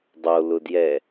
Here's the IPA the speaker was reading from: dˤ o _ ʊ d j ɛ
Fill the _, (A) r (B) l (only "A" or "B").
B